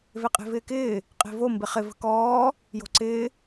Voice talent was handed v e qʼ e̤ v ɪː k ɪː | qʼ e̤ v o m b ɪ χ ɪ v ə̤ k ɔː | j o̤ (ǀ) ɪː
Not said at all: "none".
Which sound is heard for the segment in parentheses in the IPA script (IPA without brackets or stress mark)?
ǀ